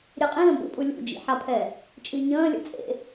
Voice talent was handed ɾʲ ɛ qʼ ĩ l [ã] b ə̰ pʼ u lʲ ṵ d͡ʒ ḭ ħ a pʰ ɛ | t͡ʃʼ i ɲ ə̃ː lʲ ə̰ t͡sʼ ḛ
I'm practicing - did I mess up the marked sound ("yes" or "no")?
yes